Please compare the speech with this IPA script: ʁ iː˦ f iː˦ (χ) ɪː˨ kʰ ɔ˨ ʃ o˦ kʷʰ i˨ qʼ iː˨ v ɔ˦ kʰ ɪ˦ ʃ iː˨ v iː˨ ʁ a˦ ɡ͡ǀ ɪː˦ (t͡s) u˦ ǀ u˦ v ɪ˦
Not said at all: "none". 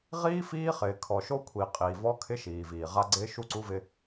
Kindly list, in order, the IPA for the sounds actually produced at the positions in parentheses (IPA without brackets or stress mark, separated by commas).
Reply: χ, ʃ